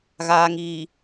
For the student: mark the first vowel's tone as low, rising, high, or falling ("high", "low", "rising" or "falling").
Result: low